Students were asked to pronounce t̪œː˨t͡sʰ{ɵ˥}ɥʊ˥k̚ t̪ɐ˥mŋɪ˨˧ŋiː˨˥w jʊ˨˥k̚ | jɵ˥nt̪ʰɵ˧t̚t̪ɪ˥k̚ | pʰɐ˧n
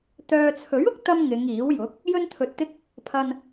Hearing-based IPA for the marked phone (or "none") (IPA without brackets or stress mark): ɵ˨˥